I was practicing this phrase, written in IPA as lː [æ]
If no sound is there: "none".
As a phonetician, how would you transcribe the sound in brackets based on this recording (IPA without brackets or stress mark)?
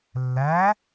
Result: æ